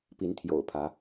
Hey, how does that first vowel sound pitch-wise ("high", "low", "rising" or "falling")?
rising